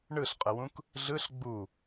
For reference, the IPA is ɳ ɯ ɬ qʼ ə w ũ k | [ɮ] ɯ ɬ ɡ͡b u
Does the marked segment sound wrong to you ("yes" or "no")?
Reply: no